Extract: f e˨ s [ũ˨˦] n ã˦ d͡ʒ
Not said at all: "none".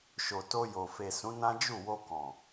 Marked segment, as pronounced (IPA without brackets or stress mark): ũ˨˦